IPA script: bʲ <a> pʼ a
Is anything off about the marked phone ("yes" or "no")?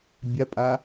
no